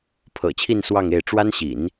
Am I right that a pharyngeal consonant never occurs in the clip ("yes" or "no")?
yes